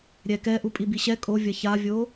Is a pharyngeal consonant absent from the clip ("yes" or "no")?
yes